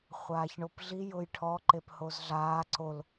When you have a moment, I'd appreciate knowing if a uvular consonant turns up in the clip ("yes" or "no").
yes